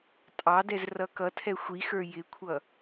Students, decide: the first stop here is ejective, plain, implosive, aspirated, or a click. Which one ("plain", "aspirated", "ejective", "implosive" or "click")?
ejective